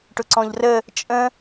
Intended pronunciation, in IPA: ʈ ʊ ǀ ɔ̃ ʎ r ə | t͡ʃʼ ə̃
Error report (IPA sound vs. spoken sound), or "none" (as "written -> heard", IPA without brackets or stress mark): none